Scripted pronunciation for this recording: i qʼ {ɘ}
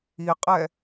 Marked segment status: incorrect: ɛ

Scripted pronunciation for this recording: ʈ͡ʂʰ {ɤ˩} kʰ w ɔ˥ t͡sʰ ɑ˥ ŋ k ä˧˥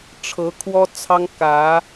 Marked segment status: incorrect: ɤ˧˥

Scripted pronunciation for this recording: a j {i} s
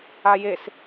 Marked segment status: incorrect: e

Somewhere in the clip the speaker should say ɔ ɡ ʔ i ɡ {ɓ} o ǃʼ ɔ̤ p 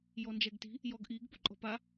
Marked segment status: incorrect: p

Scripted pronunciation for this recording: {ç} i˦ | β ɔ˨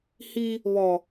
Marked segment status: incorrect: h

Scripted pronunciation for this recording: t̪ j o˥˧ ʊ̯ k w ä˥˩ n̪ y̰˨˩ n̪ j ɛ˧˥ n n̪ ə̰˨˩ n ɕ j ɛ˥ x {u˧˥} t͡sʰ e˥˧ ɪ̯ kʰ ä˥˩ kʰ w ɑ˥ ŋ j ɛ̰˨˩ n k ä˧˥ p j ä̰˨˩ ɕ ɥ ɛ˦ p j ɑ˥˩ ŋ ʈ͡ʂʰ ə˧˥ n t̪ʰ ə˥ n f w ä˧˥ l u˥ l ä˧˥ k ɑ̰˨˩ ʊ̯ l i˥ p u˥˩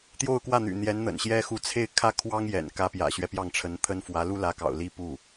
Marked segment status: correct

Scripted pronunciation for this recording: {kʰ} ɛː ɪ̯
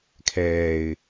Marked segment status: correct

